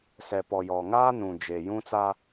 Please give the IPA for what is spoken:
s ɛ˨ p ɔ˨ j ɔ˨ ŋ aː˦ n ũ˨ d͡ʒ e˨ j ũ˦ t͡s a˦

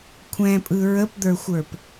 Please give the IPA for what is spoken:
kʷʰ ɛ̃ pʼ ɯ ɹ ə p d̪ ə˞ xʷ ə˞ p

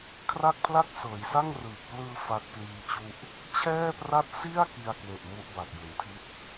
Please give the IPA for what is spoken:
kʰ r a˥˩ k̚ pʰ l a˥˩ k̚ s ɤː˩˦ j s a˥˩ ŋ r ɯː˨˩ k̚ p l ɯː˧ f a˦˥ k̚ p l iː˧ t͡ɕ u˥˩ ʔ | t͡ɕʰ ɛː˥˩ p r a˥˩ t̚ s i˥˩ a̯ k i˧ a̯ k w e˨˩ ʔ m u˦˥ ʔ b a˨˩ k̚ j u˩˦ n tʰ i˥˩ t̚

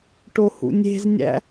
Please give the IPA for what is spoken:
ʈ o h ṵ nʲ e̤ z nʲ æ̰

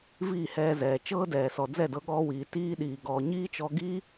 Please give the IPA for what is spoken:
v iː˦˨ h ɛː˧ z ɛː˨ t͡ʃ ɤː˦ d ɛː˨ s ɔ˨ d͡z ɛ˦˨ d ɤ˧ ɠ ɔː˧ w iː˨ t iː˦ ɗ iː˧ ɡ ɔː˧ ɲ iː˦ t͡ʃ ɔ˧ ɡ iː˦

